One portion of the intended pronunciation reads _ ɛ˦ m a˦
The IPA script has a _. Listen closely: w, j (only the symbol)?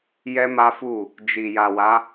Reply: j